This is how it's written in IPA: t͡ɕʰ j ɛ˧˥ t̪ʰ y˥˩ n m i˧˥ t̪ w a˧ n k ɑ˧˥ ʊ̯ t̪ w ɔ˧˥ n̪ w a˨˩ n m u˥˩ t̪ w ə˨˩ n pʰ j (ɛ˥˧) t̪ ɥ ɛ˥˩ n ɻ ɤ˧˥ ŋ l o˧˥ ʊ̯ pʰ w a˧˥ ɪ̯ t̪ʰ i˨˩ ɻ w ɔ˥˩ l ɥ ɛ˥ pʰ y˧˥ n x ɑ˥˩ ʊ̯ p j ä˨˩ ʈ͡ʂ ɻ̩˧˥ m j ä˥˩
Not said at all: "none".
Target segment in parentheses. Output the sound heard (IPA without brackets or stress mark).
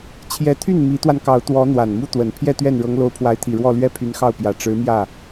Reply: ɛ˥˧